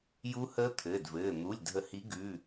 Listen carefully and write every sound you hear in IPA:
j u˦˥ h əː˦˥ t̪ʰ ɘː˩˧˩ d v ɘː˩˧˩ n̪ u˩˧˩ lʲ dʱ ə˨˩˦ h i˨˦ ɡ ʉ˩˧˩

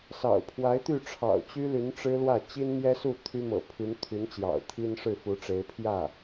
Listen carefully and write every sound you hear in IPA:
s ɑ̰˨˩ ʊ̯ pʰ w a˧˥ ɪ̯ t̪ y˥˩ ʈ͡ʂʰ ɑ̰˨˩ ʊ̯ t͡ɕ y˥ l y˧˥ n ʈ͡ʂ ɻ̩˥ l w ä˥˩ t͡ɕ i˥ n m j ɛ˥ s u˥˩ t̪ʰ y˥ m ɤ̰˨˩ pʰ y˧˥ n t̪ʰ y˧˥ n t͡ɕ j ɑ̰˨˩ ʊ̯ t̪ʰ i˥ n ʂ ɻ̩˥˩ f u˧˥ ʈ͡ʂ e˧˥ ɪ̯ pʰ j ä˥˩

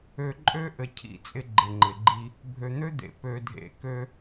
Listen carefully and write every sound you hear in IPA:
ø˨ ǃʼ ø˦ ʔ ɘ˨ cʰ ḭ˦˨ t͡sʼ ɪ˦ ɡ͡ǃ ɪ˨ ŋ͡ǃ ɪ˨ ɡ͡ǃ i˦ | bʱ ø˨ n̪ ø˦ d̪ ḛ˨ p ø˨ dʱ ḛ˨ k ø˦

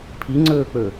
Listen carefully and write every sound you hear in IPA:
pʰ i ŋ͡ǀ ɵː k͡p ɵ

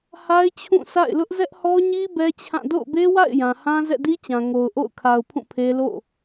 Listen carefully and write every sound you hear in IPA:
h a˦ ɪ̯ t͡ɕʰ ũ˦˨ sʰ a̰˦˨ ɪ̯ l ʊ˦ ʔ z ɛ˦ ʔ h ɔ˦ ɲ i˦ b ɛ˦ t͡ɕʰ ã˦˨ d o̰˦˨ ʊ̯ b e˦ w a̰˦˨ ɪ̯ j ã˨ h ã˦ z ɛ̰˦˨ d i˦ t͡ɕ ã˨ ŋ o˨ ʊ̯ ʔ o̰˦˨ ʊ̯ kʰ a˨ ʊ̯ pʰ ũ˦˨ pʰ e˦ l o̰˦˨

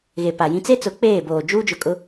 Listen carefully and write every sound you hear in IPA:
ɣ e˨ p a˨ j ĩ˦ t͡s e˦ t͡s ʊ˨˦ k͡p eː˦˨ b oː˨ d͡ʒ uː˦ d͡ʒ ʊ˨ kʼ ʊ˦

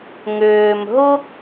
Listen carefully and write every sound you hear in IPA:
ŋ ʏː˩ m ɦ ʊ˥

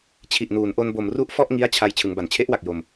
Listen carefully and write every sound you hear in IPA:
t͡ɕʰ i˨˩ ʔ n uː˩˦ n ʔ o˧ n b o˨˩ m r u˥˩ ʔ f ɔ˥˩ ʔ ŋ i˦˥ a̯ t͡ɕʰ a˧ j t͡ɕʰ ɯ˩˦ ŋ b a˩˦ n t͡ɕʰ e˦˥ ʔ w a˨˩ k̚ j o˧ m

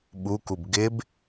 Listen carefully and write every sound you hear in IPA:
ɓ u k u b ɡ ɪ b

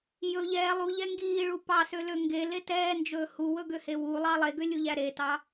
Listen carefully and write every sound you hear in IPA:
j ɵ ʎ ɛː lˠ u ʎ ɛ ŋ ɡ iː ɭ u p ɑ s ø l ø ŋ ɡ e l e t ɛː n d͡ʒ ɵː h u w ɵ ɡ ø h e w u lˠ ɑ lˠ e ɡ ø lʲ u ʎ æ ɾ e t ɑ

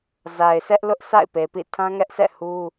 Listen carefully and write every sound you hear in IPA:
z a˨ ɪ̯ s ɛ˦ ʔ l ʊ˦ ʔ s a̰˦˨ ɪ̯ p e˨ p ḭ˦˨ tʰ ã˦ ŋ ɛ˦ ʔ sʰ ɛ̰˦˨ h u˦

